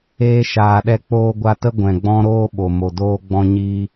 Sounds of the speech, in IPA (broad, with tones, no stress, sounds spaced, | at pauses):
eː˧ ʃ aː˨ ɗ ɛ˧ k͡p oː˧ ɡʷ a˧ t ə˦ ɡʷ ɛ̃˨ ɡ͡b ɔ̃˦ ɾ oː˧ ɓ o˨ m o˨ d oː˧ ɡ͡b ɔ̃˧ ɲ i˧